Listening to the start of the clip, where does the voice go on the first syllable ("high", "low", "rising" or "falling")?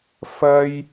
high